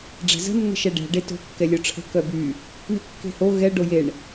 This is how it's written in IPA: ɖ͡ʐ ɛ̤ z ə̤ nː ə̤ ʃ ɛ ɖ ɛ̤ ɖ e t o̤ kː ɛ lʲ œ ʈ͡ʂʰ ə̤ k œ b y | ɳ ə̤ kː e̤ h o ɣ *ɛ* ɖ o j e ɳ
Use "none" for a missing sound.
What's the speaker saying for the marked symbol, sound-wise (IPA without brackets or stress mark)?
ɛ